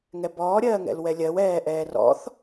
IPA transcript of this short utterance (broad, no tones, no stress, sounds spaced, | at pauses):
ŋ ɛ b ɔː ɾʲ ɜː ŋ ɛ̰ l w ɛ lʲ ɜ w ɛː ʔ ɛː r ɔ̰ θ